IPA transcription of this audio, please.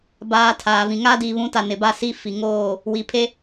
b aː˨ tʰ aː˨ v ĩ˨ ŋ a˦ d iː˨ β ũ˨˦ t a˨ n ɪ˨ b a˦˨ s i˦˨ f i˨ ŋ oː˦˨ | w i˨ pʰ e˦

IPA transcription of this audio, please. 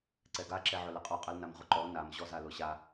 ǀ ɛ ɡ a ǁ ɛ ʕ ʊ l ɛ qʼ ɔ qʼ ɐ l n a m ʁ ʊ ǃ ɔ n a m ʑ ɔ z a l ʊ ɕ a

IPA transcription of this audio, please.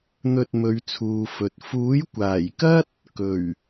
n̪ ɵ˧ t̚ m ɵ˨˧ ɥ t͡sʰ uː˨ f ɵ˨ t̚ f uː˨˥ j kʷ aː˨˩ j k ɐ˥ t̚ | k ɵ˨˩ ɥ

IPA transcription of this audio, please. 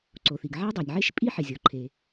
ǀ o˩ θ i˩ ɡ ʕ a˦ dˤ e˩ nʲ ʕ e˦ ʃ pʼ i˦ ħ ɪ˩ zʲ ɔ˩ ǃʰ e˩

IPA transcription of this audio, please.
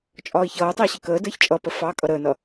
t͡ʃʼ ɒː i̯ ç ʌː u̯ tˤ ɪː ɕ ɪ k əː d əː ç t͡ʃʼ ʌ p ə f ɑ kʼ ʌ ɾ əː n ʌ

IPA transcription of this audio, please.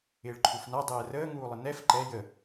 ɪː ɭ ǃʰ u f n a dˤ ɛː r əː ŋ uː lˠ ə n ɛ f ǃ ɛ j ə

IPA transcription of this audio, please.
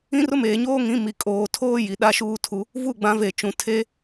ĩ˦ r ʊ˦ m eː˨ ɲ oː˦ ŋ ĩ˨˦ m i˨ kʼ oː˨ tʰ oː˦ j i˨ ɗ a˦ ʃ uː˦ tʰ u˦ | v u˦˨ ɡ͡b ã˨˦ v e˨ t͡ʃ ũ˨ tʰ e˦

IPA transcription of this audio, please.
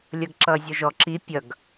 lʲ ʌ ɡ ǁ ʌː zʲ ɔ ʒ ɔ ǁ i pʲ ʌ ɡ

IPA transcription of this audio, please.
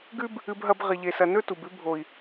ɡ ʉ˦ b | ɨ˧ b ɦ ɐ˧ b ʁ i˨ ʎ e˨ s ɐ˨ n ɵ˦ t u˨ b ʉ˧ bʱ o˨ i̯

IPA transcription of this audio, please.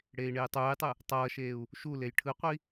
ɽ eː i̯ ɳ eː tˤ uː j tˤ ɯ | tˤ ʌː ʃ eː u̯ | ʃ u l e j ʈʰ ɯ qʷ i

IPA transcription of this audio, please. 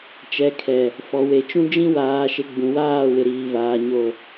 t͡ʃ ɛ˨ kʰ ɛ˨ | f ɔ˨ w e˨ t͡ʃ ũ˦ d͡ʒ ĩ˦ w aː˨ ʃ ɪ˨ ɡ͡b ũ˨ w aː˦˨ w ɪ˨ ɾ iː˨ v aː˨ ɲ o˨

